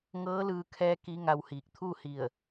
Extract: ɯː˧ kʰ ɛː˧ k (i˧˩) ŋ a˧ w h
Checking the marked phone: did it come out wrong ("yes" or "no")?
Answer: yes